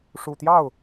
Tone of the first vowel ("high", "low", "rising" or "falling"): low